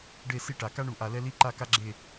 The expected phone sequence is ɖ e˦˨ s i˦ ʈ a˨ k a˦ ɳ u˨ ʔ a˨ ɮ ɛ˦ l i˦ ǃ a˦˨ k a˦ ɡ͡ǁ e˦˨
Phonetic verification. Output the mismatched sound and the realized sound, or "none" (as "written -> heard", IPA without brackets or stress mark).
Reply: ɮ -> l